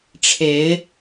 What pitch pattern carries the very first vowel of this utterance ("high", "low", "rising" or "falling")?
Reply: rising